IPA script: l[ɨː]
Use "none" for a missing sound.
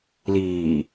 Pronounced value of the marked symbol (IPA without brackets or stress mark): iː